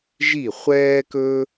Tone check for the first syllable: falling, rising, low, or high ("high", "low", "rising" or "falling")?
falling